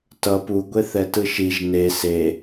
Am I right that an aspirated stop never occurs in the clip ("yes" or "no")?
yes